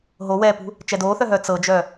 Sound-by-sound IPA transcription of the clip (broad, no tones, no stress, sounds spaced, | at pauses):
ɦ o w ɛː p ṳ | t͡ʃ ɛ d oː θ œ ɦ œː t͡s ɤ d͡ʒ œ